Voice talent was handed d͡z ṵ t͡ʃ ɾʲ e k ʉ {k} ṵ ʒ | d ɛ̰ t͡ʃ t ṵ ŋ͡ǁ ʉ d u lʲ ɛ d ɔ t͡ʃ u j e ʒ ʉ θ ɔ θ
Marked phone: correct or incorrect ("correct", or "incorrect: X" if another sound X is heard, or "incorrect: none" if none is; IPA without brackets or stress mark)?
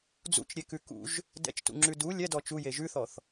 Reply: correct